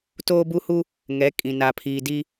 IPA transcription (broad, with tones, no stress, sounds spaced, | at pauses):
t oː˦ b u˦ h u˦ | ŋ ɛ˨˦ kʼ ĩ˨ n a˨ pʰ iː˨ d i˦